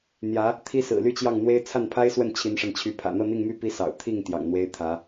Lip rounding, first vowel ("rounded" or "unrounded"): unrounded